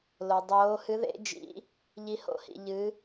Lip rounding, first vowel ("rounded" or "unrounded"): rounded